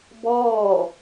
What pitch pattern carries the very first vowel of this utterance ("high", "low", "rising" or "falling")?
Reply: falling